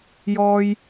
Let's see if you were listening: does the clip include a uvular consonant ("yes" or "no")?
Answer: no